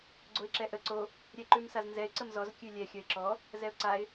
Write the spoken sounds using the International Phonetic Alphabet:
ɡ͡ǀ o ɪ̯ ǁ ɛ ʔ ə ǀ o | ɾʲ ɛ ǃ ʉ m s a z n z ɛ ɪ̯ ǀ ə m z ɔ z kʲ ʉ lʲ ɛ xʲ ɐ ɪ̯ ǁ ɔ | z ɛ ʊ̯ ǀ a ɪ̯

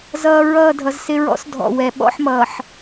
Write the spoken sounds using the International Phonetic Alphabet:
z ʌː˨ ɹ ʌː˦˨ dʱ ʌ˨ z s ɪ˦ ɹ ɔ̰˦ s dʱ ɔ̰˨ w ɛ˨ ɓ ɔ̰˦ ħ m ʌː˨ ħ

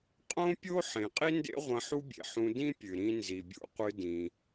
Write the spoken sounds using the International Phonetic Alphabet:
qʼ õ˥ pʲ o˥ ħ ẽ˩ qʼ i˥ n d ḛ˥ ʁʷ ɐ̃˧ ħ u˥ bʲ ḛ˩ ħ ũ˧ d ĩ˥ pʲ ɨ˩ ɾ ĩ˧ n z i˩ bʲ ṵ˧ qʷ ɨ˧ d ĩ˩

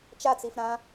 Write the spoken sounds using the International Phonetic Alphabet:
t͡ʃ a t͡s i f ɾ ã

